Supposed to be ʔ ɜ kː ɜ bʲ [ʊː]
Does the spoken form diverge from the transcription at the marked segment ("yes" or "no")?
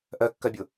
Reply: yes